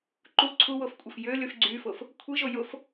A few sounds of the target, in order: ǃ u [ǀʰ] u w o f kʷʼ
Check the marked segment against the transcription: correct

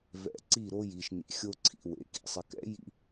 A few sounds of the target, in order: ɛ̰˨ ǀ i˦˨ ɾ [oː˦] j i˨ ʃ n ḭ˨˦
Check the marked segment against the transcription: incorrect: o˦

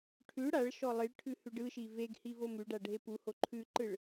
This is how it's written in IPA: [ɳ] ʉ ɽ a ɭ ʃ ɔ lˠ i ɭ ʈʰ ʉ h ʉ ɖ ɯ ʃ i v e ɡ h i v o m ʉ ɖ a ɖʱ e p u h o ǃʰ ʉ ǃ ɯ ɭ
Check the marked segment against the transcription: incorrect: ʈʰ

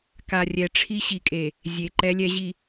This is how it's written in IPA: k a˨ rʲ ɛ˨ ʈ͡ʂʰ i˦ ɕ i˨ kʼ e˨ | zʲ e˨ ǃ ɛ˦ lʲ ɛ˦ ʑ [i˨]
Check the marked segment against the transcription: correct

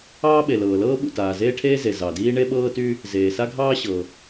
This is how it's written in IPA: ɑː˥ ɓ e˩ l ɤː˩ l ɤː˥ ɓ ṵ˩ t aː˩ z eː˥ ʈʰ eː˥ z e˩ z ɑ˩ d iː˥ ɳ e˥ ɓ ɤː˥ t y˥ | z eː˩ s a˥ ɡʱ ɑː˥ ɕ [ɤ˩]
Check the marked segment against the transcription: correct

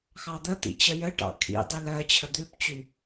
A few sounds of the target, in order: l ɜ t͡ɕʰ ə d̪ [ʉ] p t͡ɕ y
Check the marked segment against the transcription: correct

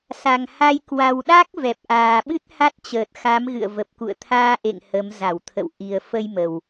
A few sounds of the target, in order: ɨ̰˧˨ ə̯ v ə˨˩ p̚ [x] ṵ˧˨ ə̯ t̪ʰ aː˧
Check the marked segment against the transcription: incorrect: k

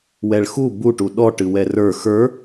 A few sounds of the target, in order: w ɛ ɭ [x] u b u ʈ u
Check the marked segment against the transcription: correct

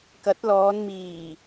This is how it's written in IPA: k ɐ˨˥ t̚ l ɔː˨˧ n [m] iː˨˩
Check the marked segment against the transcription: correct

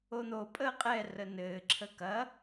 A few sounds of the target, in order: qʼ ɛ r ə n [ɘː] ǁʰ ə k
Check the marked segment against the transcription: correct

